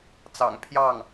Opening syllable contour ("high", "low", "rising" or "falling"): low